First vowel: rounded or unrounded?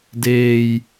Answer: unrounded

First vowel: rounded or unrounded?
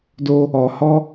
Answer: rounded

